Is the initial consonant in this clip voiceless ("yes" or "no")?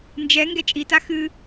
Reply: no